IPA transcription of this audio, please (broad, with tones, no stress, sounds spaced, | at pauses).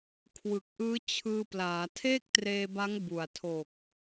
kʰ w ɯ˨˩ k̚ ʔ ɯː˦˥ t͡ɕʰ ɯː˧ p l aː˩˦ tʰ eː˥˩ k̚ t r eː˧ b a˦˥ ŋ b u˨˩ a̯ tʰ o˨˩ k̚